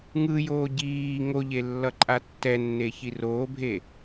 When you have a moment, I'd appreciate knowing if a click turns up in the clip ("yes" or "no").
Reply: yes